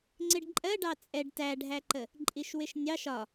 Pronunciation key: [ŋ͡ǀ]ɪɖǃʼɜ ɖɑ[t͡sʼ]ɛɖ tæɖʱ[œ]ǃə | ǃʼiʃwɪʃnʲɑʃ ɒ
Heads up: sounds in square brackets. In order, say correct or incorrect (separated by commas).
correct, correct, incorrect